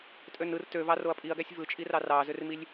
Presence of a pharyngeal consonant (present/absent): absent